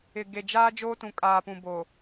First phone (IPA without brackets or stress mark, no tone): ɪ